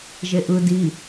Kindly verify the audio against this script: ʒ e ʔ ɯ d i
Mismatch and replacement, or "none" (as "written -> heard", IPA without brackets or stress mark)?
none